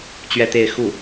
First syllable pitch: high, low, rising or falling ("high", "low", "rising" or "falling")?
falling